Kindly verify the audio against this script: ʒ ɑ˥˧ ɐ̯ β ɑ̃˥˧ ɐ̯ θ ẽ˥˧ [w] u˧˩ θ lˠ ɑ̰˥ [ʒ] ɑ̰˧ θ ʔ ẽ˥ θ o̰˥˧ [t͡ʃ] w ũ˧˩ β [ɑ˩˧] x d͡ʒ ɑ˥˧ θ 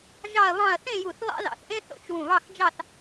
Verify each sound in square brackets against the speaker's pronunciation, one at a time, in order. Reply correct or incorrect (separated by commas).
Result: incorrect, incorrect, correct, incorrect